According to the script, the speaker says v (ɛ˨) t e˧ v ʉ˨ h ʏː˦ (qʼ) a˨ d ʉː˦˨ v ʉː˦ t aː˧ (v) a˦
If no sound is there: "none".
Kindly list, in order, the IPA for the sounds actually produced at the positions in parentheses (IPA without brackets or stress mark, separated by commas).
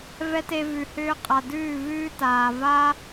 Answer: ɛ˦, qʼ, v